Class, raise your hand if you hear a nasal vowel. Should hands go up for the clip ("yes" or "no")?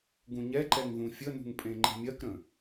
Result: yes